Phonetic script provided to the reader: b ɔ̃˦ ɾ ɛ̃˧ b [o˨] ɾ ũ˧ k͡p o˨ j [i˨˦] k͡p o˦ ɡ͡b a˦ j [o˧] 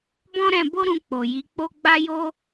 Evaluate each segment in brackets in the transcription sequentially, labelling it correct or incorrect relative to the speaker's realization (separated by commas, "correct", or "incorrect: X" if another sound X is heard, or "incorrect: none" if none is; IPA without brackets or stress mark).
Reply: incorrect: o˦, correct, incorrect: o˦